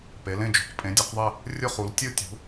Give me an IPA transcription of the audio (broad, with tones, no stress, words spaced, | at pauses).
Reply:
pe˩˧lẽ˦˨d͡ʒṳ˩˧q pʼẽ˩˧dʲɯ˩˧qðˤe˦˨ | rʲʊ˦˨χu˩˧l tʲɯ˦˨tʲṳ˩˧